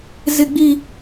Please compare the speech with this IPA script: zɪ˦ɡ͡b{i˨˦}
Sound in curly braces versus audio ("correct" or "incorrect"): incorrect